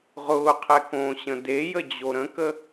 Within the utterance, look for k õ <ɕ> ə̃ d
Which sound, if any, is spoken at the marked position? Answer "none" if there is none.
ɕ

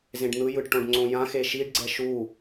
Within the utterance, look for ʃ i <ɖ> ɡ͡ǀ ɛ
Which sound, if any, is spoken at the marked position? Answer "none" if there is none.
ɖ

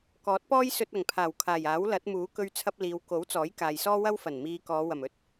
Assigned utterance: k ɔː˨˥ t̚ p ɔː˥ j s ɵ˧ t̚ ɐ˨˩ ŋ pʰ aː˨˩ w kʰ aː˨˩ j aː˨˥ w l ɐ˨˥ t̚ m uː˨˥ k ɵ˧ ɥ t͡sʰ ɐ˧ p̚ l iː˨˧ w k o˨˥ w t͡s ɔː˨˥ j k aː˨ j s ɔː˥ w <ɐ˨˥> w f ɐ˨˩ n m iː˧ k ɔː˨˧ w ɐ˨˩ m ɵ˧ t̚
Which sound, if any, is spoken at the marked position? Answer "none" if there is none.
ɐ˥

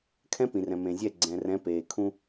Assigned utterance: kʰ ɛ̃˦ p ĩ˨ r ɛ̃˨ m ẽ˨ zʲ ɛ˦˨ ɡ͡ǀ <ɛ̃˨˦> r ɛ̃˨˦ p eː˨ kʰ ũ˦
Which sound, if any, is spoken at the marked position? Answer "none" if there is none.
ɛ̃˨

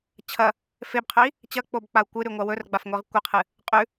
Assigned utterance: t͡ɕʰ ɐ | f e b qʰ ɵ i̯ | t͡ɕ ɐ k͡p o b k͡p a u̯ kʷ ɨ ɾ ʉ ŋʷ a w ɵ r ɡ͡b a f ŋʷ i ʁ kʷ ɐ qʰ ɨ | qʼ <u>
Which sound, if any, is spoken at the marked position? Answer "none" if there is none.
ʉ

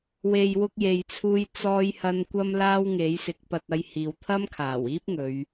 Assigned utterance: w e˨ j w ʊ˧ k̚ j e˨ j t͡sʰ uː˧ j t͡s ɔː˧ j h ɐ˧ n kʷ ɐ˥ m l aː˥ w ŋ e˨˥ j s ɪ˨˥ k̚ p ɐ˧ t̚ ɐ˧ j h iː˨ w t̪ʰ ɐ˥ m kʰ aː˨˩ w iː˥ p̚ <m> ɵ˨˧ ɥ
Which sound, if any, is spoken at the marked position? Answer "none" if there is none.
ŋ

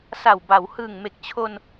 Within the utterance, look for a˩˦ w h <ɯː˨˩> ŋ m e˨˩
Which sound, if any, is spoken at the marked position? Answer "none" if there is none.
ɯː˨˩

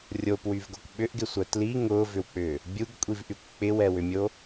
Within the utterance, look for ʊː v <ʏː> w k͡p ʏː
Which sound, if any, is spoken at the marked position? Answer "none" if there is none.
ʏ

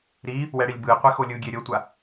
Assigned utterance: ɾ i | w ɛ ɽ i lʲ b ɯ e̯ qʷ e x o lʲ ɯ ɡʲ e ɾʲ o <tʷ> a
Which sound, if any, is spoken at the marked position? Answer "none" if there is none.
tʷ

